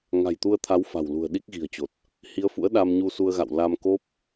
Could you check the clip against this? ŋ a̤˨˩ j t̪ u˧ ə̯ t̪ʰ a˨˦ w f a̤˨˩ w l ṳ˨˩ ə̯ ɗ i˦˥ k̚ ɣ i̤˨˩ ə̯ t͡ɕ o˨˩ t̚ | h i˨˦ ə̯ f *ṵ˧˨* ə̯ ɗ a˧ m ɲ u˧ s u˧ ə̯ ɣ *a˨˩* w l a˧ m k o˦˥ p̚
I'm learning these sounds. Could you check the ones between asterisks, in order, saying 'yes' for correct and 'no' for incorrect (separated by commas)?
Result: no, no